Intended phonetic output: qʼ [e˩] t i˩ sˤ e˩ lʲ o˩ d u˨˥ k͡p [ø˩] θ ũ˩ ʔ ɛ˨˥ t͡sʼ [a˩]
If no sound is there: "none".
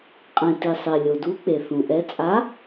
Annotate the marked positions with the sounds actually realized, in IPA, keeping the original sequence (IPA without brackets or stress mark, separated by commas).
ẽ˩, e˩, a˨˥